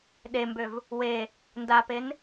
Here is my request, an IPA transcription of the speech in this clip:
ɗ e m b ø v | w e | n d a p e n

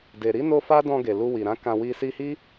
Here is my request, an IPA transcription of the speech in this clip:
d e˨ ɾ i˨˦ n o˧ f a˦ d ɔ̃˧ ɡ e˨ l u˧ w i˨ ɾ ã˨˦ k ã˧ w i˧ s i˧ h i˦

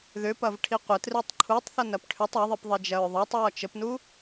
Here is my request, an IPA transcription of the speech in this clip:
ð ʏ p ɐ v ʈʰ i qʷ ə t r i tˤ ǃʰ u tˤ θ ɐ n ɐ p ʈʰ ʏ tˤ ɐ ðˤ i p ðˤ i d͡ʒ ɐ ɹ ðˤ ɤ tˤ ɹ ɔ t͡ʃ ə p n u

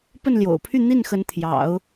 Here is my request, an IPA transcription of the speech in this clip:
p ə˥˩ n l j o̰˨˩ ʊ̯ pʰ y˥˧ n̪ i˥˩ n x ə˧˥ n t̪ʰ j ɑ̰˨˩˦ ʊ̯

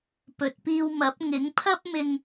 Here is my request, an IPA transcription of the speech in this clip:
p ɵ˨ t̚ p iː˧ w m ɐ˨˥ p̚ ŋ ɪ˨˥ ŋ pʰ ɐ˥ p̚ m ɪ˧ ŋ

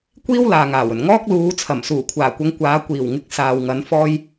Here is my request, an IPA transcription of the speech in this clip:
kʷ iː˥ w l aː˨ ŋ aː˨˩ w ɵ˨˩ n ŋ ɔː˥ k̚ l uː˨˧ t͡sʰ ɐ˨˩ m s uː˨˩ kʷʰ aː˨˩ kʷ ɐ˨˧ ŋ kʷ aː˨˧ kʷ iː˨˩ w ŋ ɪ˧ k̚ s aː˨ w ŋ ɐ˨˧ n f ɔː˥ j

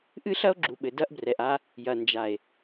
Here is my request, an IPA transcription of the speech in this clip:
ʔ ɨ˦ ɬ ɐ˦ o̯ ɡ͡ǁ u˨ ɓ ɘ˨ d ɐ˦ ʔ b r ɛ˨ ʔ a˦ | j ɐ˨ n d͡ʒ a˨ e̯

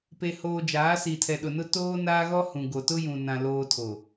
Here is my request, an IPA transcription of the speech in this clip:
p e˨ h oː˨ d͡ʒ aː˨˦ s i˨ tʰ ɛ˨ ɗ ʊ˨ n ʊ˦ t oː˦ n aː˦ ɣ ɔ˦ h ũ˨ ɡ o˨ t ʊ˦ j ũ˨ n ã˨ l oː˨ tʰ o˨

